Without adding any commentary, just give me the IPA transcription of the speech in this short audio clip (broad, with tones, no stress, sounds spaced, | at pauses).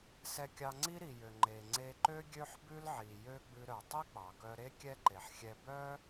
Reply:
s ɛ˧ kʲ ɑ˧ ŋ͡ǀ i˥ ɾ i˩ j ø˩ ŋ͡ǃ e˩ ŋ͡ǀ e˧ ǃ ø˥ ɡʲ ø˥ ħ b ʉ˥ l ʕ i˩ j ø˥ ɡ͡b ʉ˧ ɾ œ˩ tˤ i˥ k͡p ɑ˩ k œ˧ ɾ e˥ kʲ ɛ˥ ǃ e˩ ħ xʲ ɛ˧ b œ˥